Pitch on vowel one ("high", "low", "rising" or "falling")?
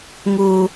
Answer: high